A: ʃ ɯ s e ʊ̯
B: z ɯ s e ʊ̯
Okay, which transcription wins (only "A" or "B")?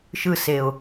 A